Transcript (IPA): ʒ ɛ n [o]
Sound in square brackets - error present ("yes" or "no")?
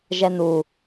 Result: yes